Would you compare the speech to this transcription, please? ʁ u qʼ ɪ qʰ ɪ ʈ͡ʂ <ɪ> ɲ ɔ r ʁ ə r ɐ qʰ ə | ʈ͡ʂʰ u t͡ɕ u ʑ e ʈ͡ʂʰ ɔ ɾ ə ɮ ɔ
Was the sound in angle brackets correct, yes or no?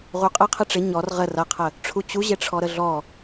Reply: yes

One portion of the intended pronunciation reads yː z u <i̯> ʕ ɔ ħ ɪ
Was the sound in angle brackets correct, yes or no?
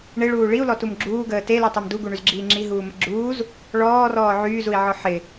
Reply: yes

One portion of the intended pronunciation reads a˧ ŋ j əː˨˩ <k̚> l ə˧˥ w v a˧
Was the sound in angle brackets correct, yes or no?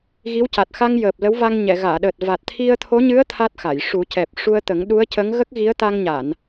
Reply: no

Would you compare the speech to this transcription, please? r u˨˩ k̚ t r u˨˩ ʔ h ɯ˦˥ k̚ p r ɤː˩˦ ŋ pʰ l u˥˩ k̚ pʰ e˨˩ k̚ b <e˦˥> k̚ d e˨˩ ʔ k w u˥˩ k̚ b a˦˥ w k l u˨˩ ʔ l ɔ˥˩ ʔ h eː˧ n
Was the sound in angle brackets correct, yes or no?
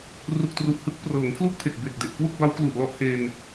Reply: no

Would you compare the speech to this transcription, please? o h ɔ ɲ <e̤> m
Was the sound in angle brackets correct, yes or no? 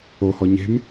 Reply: yes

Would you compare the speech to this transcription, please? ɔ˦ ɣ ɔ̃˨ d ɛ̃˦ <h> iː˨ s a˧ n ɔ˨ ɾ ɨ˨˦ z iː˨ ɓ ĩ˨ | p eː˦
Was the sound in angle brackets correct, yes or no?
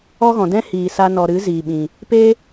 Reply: yes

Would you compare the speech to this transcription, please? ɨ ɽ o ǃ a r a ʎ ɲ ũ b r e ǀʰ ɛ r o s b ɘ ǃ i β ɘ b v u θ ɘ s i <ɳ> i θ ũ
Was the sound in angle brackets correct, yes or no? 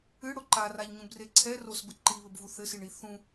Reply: yes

